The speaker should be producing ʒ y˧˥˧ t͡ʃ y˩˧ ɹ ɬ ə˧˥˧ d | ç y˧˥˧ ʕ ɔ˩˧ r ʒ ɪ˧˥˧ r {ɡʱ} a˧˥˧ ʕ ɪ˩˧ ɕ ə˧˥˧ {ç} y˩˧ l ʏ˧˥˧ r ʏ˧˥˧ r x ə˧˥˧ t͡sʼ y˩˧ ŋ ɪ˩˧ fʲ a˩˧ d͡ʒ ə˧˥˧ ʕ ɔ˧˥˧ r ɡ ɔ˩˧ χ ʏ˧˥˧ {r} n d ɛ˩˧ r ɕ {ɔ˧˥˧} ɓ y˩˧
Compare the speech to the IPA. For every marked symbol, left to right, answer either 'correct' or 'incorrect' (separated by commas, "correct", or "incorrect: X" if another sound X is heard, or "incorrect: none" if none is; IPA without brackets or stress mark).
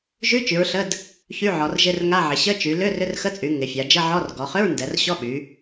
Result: incorrect: ŋ, incorrect: t͡ʃ, incorrect: ɹ, correct